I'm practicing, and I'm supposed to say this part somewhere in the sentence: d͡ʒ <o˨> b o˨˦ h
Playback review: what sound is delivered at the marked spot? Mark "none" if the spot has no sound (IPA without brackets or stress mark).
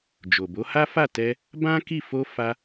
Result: o˨